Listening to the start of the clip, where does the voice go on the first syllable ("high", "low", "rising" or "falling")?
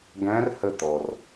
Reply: rising